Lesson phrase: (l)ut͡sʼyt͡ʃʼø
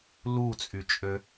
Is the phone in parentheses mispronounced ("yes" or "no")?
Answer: no